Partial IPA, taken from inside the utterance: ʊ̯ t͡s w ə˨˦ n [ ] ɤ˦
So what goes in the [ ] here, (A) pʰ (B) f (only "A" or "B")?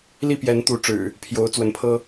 A